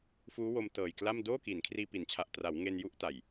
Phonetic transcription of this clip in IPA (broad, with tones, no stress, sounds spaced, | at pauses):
f uː˦˥ w o˧ m t ɤː˨˩ j k l a˥˩ m d oː˥˩ k i˩˦ n kʰ r iː˧ p i˩˦ n t͡ɕʰ a˨˩ ʔ t r a˩˦ w ŋ e˧ n j u˥˩ ʔ t a˨˩ j